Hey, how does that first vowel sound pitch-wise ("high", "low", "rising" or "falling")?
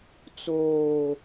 low